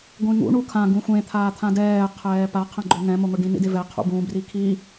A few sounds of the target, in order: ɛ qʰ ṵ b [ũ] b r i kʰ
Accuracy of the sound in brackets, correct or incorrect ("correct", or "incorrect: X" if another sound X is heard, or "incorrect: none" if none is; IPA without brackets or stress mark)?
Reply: correct